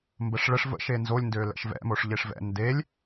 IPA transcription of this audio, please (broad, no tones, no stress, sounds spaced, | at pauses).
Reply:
m b ə ʂ ɭ ə ʂ v ə̰ ʃ e n z o lʲ n d ø l ɛ̰ ʃ v ɛ̰ m o ʂ ʎ e ʂ v ɛ̰ n d e lʲ